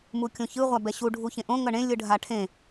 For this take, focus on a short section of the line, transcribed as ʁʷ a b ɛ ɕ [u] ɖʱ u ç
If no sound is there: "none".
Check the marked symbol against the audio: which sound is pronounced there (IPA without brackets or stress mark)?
u